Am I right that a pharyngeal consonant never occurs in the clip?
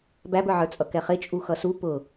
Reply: no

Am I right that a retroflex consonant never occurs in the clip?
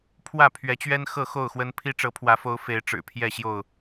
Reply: no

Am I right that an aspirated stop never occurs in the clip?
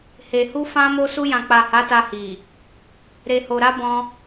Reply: yes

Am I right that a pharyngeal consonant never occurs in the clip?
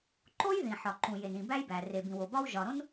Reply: no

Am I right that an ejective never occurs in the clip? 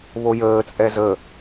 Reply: no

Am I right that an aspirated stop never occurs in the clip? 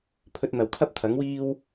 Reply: no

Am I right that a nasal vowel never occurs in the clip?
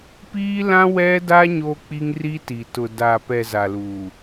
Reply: no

